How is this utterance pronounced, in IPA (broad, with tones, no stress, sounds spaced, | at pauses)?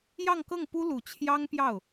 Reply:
j ɑ˥˧ ŋ k ɤ˥˩ ŋ p u˥ l u˨˩ t͡ɕʰ j ɑ˥ ŋ p j ɑ˥˩ ʊ̯